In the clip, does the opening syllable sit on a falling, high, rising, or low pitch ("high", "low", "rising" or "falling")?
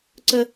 high